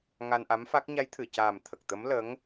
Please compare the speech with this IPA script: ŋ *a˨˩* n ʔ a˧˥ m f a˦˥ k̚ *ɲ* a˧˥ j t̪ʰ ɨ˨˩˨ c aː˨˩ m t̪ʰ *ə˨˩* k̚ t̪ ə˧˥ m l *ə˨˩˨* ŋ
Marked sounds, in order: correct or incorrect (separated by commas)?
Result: incorrect, correct, correct, incorrect